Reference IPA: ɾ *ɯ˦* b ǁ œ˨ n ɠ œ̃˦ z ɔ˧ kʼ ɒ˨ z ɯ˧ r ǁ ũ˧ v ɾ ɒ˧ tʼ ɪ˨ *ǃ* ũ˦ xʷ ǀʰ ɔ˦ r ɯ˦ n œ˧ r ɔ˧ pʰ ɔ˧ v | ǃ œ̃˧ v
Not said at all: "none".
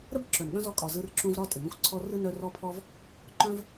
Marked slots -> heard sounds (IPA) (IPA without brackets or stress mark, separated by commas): ə˦, ŋ